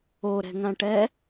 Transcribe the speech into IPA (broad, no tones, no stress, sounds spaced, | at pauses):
o ɾ ɛ̤ ŋ ã ʈ ɛ